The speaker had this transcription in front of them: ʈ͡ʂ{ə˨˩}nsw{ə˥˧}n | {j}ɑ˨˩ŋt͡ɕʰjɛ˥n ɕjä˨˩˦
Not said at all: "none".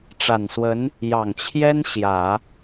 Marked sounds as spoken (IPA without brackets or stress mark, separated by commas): a˨˩, ə˧˥, j